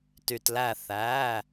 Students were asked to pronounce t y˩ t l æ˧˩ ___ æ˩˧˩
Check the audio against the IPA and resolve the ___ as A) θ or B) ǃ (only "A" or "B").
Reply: A